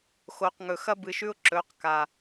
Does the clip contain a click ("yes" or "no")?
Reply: yes